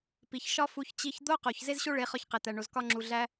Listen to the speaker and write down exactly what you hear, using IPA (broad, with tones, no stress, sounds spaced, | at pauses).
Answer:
p i˨ ç ʃ ɒ˦ f u˧ ç t͡ɕ i˦ ç d̪ o˦ q o˨ ç z e˦ z ɕ o˦ ɭ e˨˦ χ ɒ˧ ç q e˨ t̪ æ˨ ɳ o˨ z k ɒ˧ ŋ͡ǁ u˨ ɮ æ˧